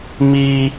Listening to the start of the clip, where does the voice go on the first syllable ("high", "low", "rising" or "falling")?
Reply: high